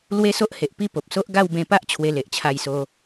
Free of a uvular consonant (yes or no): yes